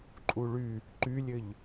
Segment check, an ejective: present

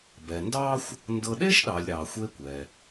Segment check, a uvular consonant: absent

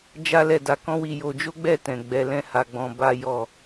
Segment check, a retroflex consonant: absent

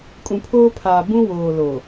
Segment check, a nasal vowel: present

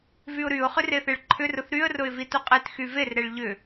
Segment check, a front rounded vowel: present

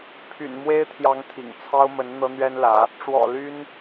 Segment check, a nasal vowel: absent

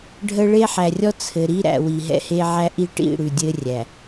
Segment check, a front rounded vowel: absent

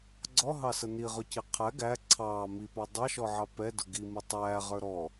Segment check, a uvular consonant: present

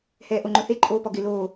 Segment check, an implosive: absent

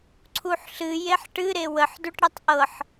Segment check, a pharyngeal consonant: present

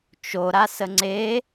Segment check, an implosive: absent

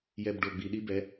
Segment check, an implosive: present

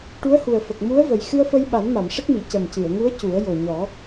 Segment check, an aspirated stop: absent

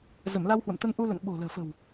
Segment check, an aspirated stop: absent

